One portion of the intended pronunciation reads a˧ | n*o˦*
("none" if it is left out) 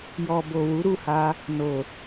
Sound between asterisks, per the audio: o˨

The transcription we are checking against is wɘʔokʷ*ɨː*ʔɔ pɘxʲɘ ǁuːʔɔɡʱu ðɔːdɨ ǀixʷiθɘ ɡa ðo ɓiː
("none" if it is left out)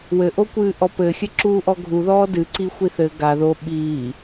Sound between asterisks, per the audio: ɨː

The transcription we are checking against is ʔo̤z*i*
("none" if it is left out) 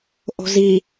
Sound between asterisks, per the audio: i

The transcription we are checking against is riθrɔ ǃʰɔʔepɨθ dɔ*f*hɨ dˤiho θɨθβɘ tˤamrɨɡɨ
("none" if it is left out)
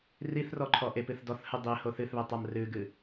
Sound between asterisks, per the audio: θ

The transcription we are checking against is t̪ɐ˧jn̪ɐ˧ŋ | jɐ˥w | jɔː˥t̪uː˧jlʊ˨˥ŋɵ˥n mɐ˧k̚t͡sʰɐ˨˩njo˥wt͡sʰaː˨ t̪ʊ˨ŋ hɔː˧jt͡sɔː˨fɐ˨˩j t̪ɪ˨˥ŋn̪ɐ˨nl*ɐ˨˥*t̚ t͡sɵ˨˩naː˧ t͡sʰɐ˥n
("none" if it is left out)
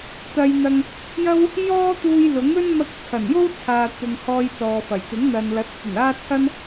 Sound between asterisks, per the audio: ɐ˨˥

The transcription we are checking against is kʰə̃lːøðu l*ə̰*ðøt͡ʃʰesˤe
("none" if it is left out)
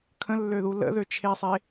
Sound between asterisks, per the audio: ə̰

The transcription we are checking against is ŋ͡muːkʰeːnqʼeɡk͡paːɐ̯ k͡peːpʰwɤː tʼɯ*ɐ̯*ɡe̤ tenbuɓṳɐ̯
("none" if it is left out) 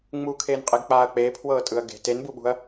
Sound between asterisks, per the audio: ɐ̯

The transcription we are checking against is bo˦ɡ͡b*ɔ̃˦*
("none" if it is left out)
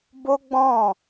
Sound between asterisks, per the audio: ɔ̃˦˨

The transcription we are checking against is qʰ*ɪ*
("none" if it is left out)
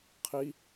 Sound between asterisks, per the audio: i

